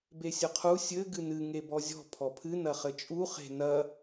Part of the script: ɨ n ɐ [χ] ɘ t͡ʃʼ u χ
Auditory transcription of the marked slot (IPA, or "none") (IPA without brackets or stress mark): χ